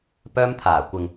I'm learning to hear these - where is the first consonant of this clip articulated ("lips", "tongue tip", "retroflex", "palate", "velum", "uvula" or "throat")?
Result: lips